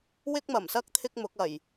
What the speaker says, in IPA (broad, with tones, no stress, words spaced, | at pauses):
wɪ˥k̚mɐ˨˩msɐ˥k̚ t̪ʰɪ˥k̚mʊ˨˥k̚ ɐ˨˩j